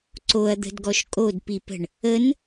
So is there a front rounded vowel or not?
no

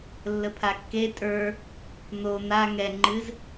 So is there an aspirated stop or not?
yes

